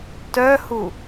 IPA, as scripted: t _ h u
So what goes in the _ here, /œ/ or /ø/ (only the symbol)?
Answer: œ